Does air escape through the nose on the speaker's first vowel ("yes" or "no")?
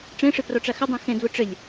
yes